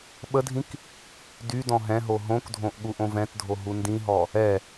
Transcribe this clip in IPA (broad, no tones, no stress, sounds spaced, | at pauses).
ɓ ə dʱ ĩ k | d y d ɔ̃ ɦ ɛ̃ ɦ o ɦ õ k dʱ õ ʔ ɠ u ʔ õ v ɛ̃ t dʱ o ɦ u n d ĩ ɦ ɔ | ɛ